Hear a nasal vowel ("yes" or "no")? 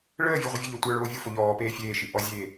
no